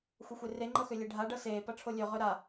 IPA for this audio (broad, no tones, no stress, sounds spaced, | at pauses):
xʷ ʌ xʷ e r e ŋ͡ǃ ʌ x ø lʲ e ɖʱ a ɖ ʌ s eː p ʌ ʈ͡ʂʰ o lʲ ø ʁ ø ɾ a